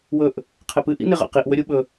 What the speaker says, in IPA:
w ɵ ʔ | qʰ e p ɨ ʔ ḭ n e ʁ a̰ q i ʔ w ɵ ɾʲ u ɓ ɵ

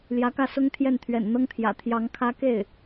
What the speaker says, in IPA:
l j ä˧˥ k ä˥˩ s ʊ˥ ŋ t̪ʰ j ɛ˥˩ n t̪ʰ ɥ ɛ̰˨˩ n n̪ ɤ˥ ŋ t̪ʰ j ä̰˨˩ t̪ʰ j ɑ˧˥ ŋ kʰ ä˥ k e˥˩ ɪ̯

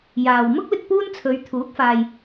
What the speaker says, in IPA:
j aː˨ w m ʊ˥ k̚ l ɪ˧ k̚ p uː˥ n t͡sʰ ɵ˨˧ ɥ t̪ʰ uː˨˥ k̚ f aː˨ j

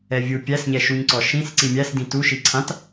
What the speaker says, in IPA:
ɛ vʲ u pʲ æ s ɲ ɛ ʃ u ɲ ǀ ɔ ʃ ĩ s ǀ i mʲ æ s d ĩ t u ʃ i ǀʰ ã t

